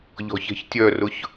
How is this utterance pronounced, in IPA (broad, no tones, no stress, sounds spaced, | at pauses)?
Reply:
ʎ ɔ̤ ç ɛ̤ ç tʲ œ r ʊ ç